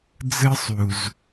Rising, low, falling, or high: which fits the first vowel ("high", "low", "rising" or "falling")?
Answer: high